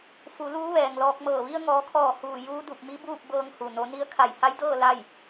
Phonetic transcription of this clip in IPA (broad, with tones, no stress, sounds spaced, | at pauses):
f u˩˧ l uː˧˥ ʋ ɛː˩ ŋ l ɔː˧ k̚ m ɤː˧˩ ʋ i˧ ə̯ ŋ ɔː˩˧ kʰ ɔː˧˩ h uː˧˩ j uː˧˥ d u˧˩ p̚ m i˧˥ b uː˥˨ p̚ b ɤː˧ ŋ h u˩ n o˩˧ n i˧˥ ə̯ kʰ a˧˩ j h a˧˥ j d ɤː˥˨ l a˥˨ j